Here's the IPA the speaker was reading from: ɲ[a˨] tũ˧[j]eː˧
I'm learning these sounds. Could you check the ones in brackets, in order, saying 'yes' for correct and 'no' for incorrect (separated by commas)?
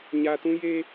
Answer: yes, yes